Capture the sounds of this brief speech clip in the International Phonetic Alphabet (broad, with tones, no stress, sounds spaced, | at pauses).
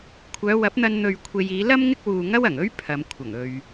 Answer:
kʷʰ œː˨˧ w ɐ˨˥ p̚ n̪ ɐ˧ n n̪ ɵ˨ ɥ kʷʰ e˨ j iː˨˧ l ɐ˥ m ŋ ɪ˥ k̚ w uː˨ ŋ ɐ˥ w ɐ˨˩ ŋ ɵ˥ ɥ pʰ ɐ˨˧ m kʷʰ ɐ˨˩ ŋ ɵ˨ ɥ